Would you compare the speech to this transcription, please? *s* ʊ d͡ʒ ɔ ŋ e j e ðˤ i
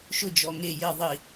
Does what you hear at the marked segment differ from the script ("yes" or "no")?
yes